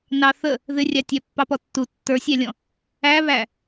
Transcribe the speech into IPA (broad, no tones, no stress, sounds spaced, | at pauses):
n ɑ θ ə | ð ɪ rʲ ɑ tʲ æ pː ɑ p ɔ tː u tː ə˞ sʲ æ lʲ ɔ̃ | æ β æ